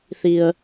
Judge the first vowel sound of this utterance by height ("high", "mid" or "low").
high